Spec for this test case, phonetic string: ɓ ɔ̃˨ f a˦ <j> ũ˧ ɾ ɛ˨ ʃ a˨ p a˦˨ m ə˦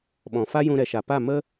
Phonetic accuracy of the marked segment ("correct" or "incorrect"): correct